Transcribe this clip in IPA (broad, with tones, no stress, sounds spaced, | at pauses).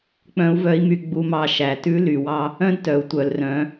k͡p œ̃˧˥ u̯ v œ˧˥ i̯ m y˧ ɡ͡b u˧ m ɑ˧ ʃ æ˩ t ʉ˧˥ l y˩ w ɑ˧ | œ̃˥ d t œ˩˧ u̯ tʷ œ˩ l r œ̃˩˧